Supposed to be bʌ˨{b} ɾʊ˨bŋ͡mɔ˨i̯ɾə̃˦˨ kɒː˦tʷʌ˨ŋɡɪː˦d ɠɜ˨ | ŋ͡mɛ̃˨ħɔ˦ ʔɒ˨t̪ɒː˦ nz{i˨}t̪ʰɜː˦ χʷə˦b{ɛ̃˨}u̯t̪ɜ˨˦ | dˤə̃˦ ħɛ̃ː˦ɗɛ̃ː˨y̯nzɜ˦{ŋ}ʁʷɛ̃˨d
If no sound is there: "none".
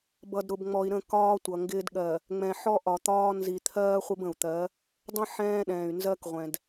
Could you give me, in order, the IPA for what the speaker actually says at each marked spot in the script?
d, i˨, ə̃˨, k

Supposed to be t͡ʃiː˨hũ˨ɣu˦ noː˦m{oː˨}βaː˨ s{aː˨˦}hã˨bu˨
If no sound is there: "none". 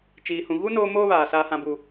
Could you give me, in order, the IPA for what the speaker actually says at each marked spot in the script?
oː˦, aː˨

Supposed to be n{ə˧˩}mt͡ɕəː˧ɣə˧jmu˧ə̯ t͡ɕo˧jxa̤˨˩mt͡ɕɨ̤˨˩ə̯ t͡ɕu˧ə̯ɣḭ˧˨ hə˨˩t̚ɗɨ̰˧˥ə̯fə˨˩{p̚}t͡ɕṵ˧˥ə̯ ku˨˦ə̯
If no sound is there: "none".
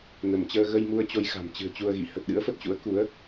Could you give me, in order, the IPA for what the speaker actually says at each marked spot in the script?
ə˧˩, t̚

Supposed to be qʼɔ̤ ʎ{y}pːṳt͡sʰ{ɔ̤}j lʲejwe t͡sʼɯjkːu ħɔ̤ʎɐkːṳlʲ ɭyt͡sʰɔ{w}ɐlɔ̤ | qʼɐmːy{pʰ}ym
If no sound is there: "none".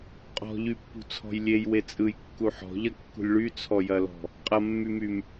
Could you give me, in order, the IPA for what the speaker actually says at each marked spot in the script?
y, ɔ̤, j, m

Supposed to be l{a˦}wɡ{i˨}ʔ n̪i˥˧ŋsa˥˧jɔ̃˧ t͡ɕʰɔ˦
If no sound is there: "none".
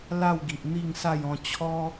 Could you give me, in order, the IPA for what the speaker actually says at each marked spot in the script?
a˥˧, i˨

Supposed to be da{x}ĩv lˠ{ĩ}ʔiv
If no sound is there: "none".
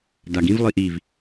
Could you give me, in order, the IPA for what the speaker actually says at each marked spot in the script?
ɡ, i

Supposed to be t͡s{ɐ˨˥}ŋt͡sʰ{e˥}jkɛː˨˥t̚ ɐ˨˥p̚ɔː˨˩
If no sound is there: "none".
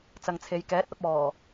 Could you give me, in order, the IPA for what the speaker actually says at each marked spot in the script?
ɐ˨, e˨˧

